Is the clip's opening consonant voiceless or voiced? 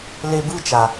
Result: voiced